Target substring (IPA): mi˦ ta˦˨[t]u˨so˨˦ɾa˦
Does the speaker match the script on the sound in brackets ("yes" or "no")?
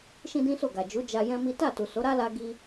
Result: yes